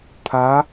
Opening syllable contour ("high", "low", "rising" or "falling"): rising